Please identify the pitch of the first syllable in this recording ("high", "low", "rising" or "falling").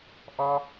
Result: high